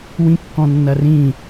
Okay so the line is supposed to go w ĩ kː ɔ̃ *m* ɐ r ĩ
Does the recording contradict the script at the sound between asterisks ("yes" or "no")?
yes